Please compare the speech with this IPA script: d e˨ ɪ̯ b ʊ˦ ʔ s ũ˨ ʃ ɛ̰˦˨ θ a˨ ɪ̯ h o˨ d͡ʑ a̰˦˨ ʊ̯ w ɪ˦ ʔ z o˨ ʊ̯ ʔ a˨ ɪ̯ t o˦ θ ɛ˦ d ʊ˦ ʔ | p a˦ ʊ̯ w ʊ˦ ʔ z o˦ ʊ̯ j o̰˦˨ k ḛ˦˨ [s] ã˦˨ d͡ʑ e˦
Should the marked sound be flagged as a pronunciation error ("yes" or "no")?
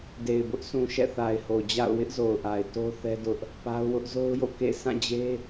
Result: no